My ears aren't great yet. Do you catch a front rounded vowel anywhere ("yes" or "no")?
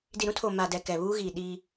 no